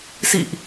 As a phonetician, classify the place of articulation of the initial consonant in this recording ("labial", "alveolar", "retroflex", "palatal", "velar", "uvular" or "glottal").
alveolar